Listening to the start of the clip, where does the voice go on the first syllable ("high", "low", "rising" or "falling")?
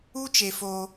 high